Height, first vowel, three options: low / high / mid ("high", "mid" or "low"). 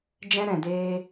mid